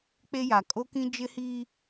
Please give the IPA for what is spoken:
k͡pe˦ja˨ kʼo˦kĩ˦ d͡ʒɪ˦hiː˦

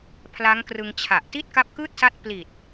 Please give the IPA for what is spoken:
pʰla˦˥ŋkrɯ˧ŋt͡ɕʰa˨˩ʔ ti˥˩t̚ka˦˥p̚kɯː˥˩t̚sa˦˥t̚ pli˨˩t̚

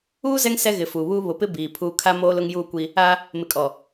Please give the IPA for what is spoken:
uː˦ zɛ˦ŋ sɛ˦ɣɪ˨fuː˨ βuː˦ βʊ˨pɪ˦ biː˨pʰuː˦ kʰa˦ moː˦lʊ˦ŋjuː˦˨kʷi˦ | a˦ | mɪ˨kʼɔ˨

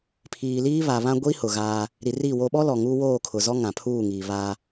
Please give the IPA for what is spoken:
pʰiː˨liː˦ βa˨βã˦ ɡʷi˦ hʊ˨ɣaː˦ | ɾi˨ri˦˨wo˦ ɓɔ˦lɔ˨ ŋuː˦woː˦˨kʰʊ˨zɔ˦ ŋã˨pʰuː˦˨ŋiː˨ βa˦

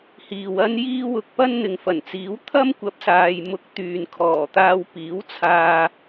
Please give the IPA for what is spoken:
hiː˨wɐ˥n jiː˥ wʊ˧k̚ pɐ˥n n̪ɪ˨ŋfɐ˨˩nt͡siː˨˥w t̪ʰɐ˥mkʷɐ˨˥p̚saː˨j mʊ˧k̚ t̪yː˨nkʰɔː˨˩t̪aː˧w piː˨˥wt͡sʰaː˧

